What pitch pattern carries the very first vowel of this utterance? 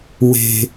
low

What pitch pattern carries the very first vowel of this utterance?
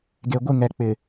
low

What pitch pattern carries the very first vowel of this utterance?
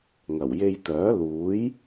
low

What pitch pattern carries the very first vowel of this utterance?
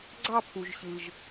falling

